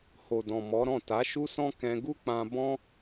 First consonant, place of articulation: glottal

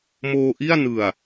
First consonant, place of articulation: labial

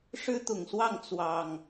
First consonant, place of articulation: retroflex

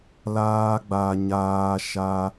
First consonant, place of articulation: alveolar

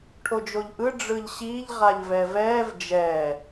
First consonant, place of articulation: retroflex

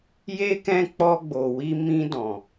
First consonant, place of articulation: palatal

